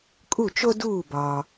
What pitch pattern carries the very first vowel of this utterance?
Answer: falling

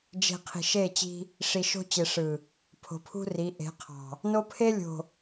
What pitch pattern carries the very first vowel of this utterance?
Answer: low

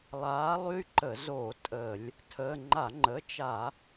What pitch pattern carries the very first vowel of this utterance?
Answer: rising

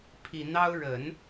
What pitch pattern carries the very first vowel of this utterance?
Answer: low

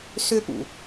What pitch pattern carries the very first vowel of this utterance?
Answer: high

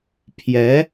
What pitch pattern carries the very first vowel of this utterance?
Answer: rising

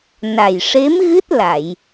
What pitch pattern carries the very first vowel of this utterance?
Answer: low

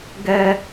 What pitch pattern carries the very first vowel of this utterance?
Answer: high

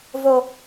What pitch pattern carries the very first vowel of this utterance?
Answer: high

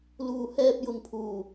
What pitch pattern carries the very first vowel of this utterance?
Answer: low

